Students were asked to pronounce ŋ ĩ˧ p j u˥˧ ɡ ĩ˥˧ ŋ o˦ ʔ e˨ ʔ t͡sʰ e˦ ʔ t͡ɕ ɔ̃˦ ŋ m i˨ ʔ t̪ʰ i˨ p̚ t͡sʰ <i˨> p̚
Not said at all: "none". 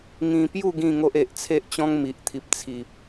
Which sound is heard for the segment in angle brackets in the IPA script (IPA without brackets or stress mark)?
i˨